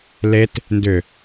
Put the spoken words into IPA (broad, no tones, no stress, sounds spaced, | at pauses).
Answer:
l e t | n d ʏ